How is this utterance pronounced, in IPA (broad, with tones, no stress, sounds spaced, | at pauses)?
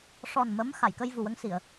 ʂ ɔ˨˩ n m ə˧˥ m x a˨˩˨ j k ə˧ j v u˨˩ w ə˧ ŋ s i˨˩˨ ə̯